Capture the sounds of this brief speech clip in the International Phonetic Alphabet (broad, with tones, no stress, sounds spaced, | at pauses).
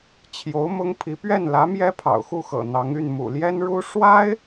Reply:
t͡ɕʰ j o˧˥ ʊ̯ m ʊ˥ ŋ pʰ i˧˥ p ɥ ɛ˥˩ n l ä˧˥ m j ɛ˥ pʰ ɑ̰˨˩ ʊ̯ x u˥˩ x ɤ̰˨˩ n̪ ɑ˧˥ ŋ y˥˩ n m ṵ˨˩ l j ɛ˥ n ɻ u˥ ʂ w a˥ ɪ̯